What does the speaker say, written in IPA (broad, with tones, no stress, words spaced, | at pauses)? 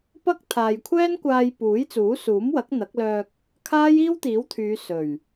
pɐ˥k̚t̪ʰaː˨jkʷʰɛː˥nkʷaː˧j puː˨˥jt͡suː˨˥suː˨˥mwɐ˨˥k̚ n̪ɐ˨˥k̚lœː˧k̚ | kʰaː˥jiː˥wt̪iː˨˥wt̪ʰyː˨˧ sɵ˨˩ɥ